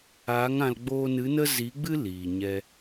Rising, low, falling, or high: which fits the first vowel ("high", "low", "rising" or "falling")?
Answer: rising